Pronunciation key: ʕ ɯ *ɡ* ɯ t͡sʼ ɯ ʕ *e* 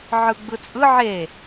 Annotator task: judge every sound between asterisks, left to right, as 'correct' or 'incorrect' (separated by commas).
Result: incorrect, correct